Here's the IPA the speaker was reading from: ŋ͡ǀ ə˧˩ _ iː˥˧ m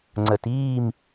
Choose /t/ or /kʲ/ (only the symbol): t